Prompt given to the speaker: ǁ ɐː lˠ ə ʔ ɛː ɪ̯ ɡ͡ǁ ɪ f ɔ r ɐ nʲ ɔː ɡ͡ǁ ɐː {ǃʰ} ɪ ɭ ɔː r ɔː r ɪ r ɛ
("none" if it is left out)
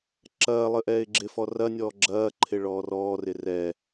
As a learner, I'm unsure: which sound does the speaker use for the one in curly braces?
ǃʰ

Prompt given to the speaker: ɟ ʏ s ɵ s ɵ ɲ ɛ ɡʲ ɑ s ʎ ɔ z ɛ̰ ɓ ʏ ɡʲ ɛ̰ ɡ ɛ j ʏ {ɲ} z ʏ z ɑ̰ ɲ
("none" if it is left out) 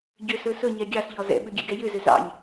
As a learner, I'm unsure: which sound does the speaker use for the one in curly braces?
none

